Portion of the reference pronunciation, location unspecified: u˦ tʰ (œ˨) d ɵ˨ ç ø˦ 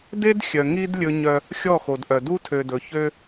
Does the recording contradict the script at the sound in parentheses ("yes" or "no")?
yes